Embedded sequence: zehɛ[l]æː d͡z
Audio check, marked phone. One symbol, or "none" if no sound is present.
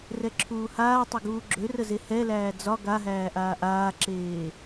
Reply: l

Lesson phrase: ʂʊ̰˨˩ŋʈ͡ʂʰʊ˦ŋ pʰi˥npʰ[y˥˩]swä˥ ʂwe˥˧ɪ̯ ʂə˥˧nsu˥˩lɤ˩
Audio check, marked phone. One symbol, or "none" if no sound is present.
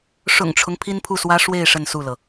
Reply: u˥˩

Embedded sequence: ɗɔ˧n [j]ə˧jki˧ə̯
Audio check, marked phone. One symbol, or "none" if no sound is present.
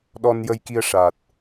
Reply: j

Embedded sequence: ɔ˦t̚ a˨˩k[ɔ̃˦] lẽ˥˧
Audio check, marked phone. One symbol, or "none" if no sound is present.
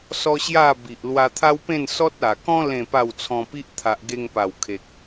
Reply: ɔ̃˦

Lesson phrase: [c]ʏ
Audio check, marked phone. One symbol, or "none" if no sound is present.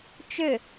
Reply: t͡ʃ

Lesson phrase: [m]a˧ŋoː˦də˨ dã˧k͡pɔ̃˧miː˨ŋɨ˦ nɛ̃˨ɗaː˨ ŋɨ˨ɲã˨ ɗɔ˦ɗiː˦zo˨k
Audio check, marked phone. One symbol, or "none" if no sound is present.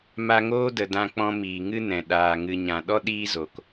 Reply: m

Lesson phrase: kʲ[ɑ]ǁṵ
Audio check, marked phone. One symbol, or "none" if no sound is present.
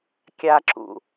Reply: a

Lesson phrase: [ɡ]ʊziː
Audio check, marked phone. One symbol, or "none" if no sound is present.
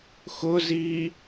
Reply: x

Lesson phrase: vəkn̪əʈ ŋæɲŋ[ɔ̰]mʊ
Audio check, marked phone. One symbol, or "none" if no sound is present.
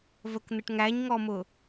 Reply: ɔ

